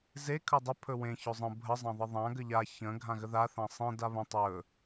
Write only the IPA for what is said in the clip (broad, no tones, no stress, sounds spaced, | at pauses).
z e kʰ ɵ dˤ ɵ pʰ ɵ w ẽ ç ɵ zˤ ə̃ bʱ ə zˤ ã ðˤ ə ðˤ ã ɡ ə ʎ a ç ə̃ ɡʱ ã ɣ ə ð a θ ã sˤ ẽ d a β ə̃ tˤ ɵ